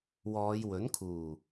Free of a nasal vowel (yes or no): yes